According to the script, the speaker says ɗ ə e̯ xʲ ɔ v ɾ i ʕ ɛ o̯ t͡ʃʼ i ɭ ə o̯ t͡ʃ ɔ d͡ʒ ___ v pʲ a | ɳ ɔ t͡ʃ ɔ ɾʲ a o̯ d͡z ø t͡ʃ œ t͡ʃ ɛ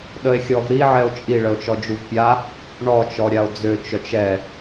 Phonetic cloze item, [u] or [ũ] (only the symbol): u